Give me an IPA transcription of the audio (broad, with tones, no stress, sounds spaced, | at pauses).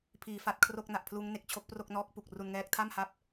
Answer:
pʰ iː˩˦ f a˨˩ t̚ kʰ r o˥˩ k̚ n a˨˩ ʔ pʰ l uː˦˥ ŋ n e˨˩ k̚ t͡ɕʰ o˦˥ k̚ p r o˥˩ k̚ n ɔː˦˥ k̚ p u˨˩ k̚ r u˧ n ŋ ɛː˦˥ k̚ tʰ a˥˩ m h a˦˥ p̚